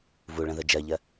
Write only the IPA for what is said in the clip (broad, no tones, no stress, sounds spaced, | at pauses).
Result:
v u ɭ ə̃ ð ə d͡ʒ ɜ ʎ ɜ